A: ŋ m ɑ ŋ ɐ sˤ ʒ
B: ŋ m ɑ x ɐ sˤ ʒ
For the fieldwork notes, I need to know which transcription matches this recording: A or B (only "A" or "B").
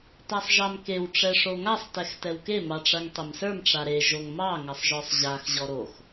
A